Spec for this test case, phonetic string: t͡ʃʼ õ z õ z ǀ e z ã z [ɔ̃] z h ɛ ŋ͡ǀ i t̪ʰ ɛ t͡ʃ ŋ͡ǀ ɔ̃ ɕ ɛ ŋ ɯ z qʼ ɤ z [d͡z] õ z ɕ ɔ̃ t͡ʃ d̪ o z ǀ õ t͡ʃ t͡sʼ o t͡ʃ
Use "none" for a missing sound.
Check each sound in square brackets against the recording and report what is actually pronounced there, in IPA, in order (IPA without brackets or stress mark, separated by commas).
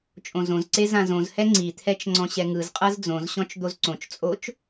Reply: õ, d͡z